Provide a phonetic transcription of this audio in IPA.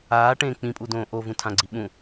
aːʈẽː k͡pĩpʼudõː ʔovũtʰãɡ͡ǀi ɓũ

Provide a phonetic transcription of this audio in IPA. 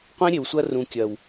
qʷẽ˦ɾʲe˨wsʷɐ˦ rũ˨kʲɐ˨w

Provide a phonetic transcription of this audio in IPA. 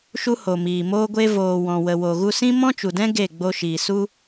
ʃu˧ho˨miː˨ moː˧ɡʷe˧ voː˨wɔ̃˨wə˨wo˨ ɣu˧sĩ˦ mɔ̃˦t͡ʃu˨dɛ̃˦ ɡe˦˨ɡ͡bo˧ʃiː˨ su˧

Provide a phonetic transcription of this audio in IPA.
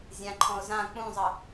zʲãǃʰɔ̃ʊ̯ zã k͡pũzˤʌ

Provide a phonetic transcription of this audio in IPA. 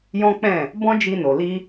jɔ̃˦k͡pɛ̃˦˨ | bɔ̃˦ d͡ʒi˧no˨li˧

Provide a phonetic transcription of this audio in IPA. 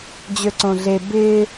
d͡ʑøǀõɮe bɪː

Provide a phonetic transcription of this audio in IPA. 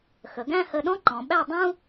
xə˩˧ɡæ̃˥˧hə˧ ɗɔ̃˥ǃɔ̃˩˧ɓæ˥˧dˤũ˥

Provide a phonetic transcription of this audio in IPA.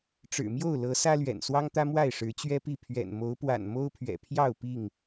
ʈ͡ʂɻ̩˨˩mjo˥˨ʊ̯lɤ˨˦ sä˦lɥɛ̰˨˩n swɑ˦ŋt̪ä˦ mwa˥˨ɪ̯ʂɻ̩˨˦ t͡ɕɥɛ˦pi˥˨ pʰɥɛ̰˨˩nmo˨˦ʊ̯pwa̰˨˩n mo˦ʊ̯pʰɥɛ̰˨˩pʰjɑ˥˨ʊ̯ pi˥˨ŋ

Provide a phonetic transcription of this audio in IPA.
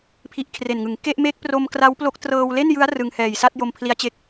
pʰi˦˥ʔkʰre˨˩nŋɯ˩˦ŋ ke˥˩ʔ me˦˥k̚pro˧m kra˦˥wplo˦˥k̚ trɤː˧wle˥˩njɯ˦˥a̯ rɯ˧ŋhɛː˨˩j sa˥˩t̚jo˧mpʰli˦˥a̯t͡ɕe˦˥k̚

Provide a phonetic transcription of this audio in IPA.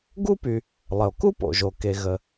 ɡu˥py˩ | lˠə˩o̯ku˥po̰˩ʒo˩ ke˩ɣə˩

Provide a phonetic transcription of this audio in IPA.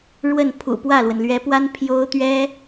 ɻwə˥˩n pʰṵ˨˩pwä˥˩lwə˩n lɥɛ˧˥pwa˥n pʰjo˥ʊ̯t̪ɥɛ˥

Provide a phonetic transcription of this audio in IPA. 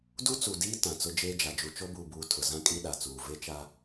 du˦t͡su˨diː˦ tã˨t͡sʊ˦ d͡ʒeː˦d͡ʒa˨ d͡ʒu˨t͡ʃo˦buː˨buː˨ tʰʊ˨zã˦kʼi˦ ɗa˨t͡suː˨ ve˦t͡ʃa˦

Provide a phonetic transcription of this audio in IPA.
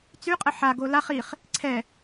t͡syqʼə ħaɡo laχ iχ | ǀʰɛ

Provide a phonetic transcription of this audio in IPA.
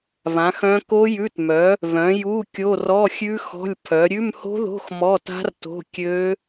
βã˨˥xœ̃˦˥ ko˦˥jʉ˧˥˧tmœ˨˥ | βœ̃˨˥ju˧˥˧ kʲo˧˥˧rɔ˧˥˧xʲʉ˦˥xɔ̤˧˥˧lʲ pʰœ˨˥ ɾʲʉ˧˥˧mho̤˦˥ðo̤˧˥˧x mɔ˧˥˧ta̤˦˥rto̤˧˥˧ kʲø˦˥

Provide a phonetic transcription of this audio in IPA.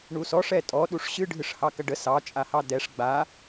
ɳusɔ ʂɛtʼɔ ɗuʂɕɨ ɖʱɨʂhɑkɐɖə sɑ t͡ʃʼahɑdɛʂ ɡ͡ba

